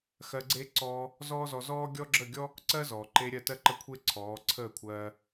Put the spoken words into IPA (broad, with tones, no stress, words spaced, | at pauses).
xɜ˧ɡ͡ǀe˦ ǀɔː˧ | zɔː˦zɔ˧ zɔː˦ ɡʲɔ˦ɡ͡ǁə˦˨ɡʲɔ˦ | ǀɜ˦zɔː˨ ǃe˧ ɾʲɜ˦˨tɜ˦ǃə˦kʷʰe˦ ǀʰɔː˨˦ǀʰəː˦˨kʷʰɜː˧